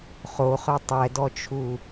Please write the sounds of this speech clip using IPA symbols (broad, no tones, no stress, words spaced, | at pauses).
χoχœ tˤɛdɔt͡ʃʰu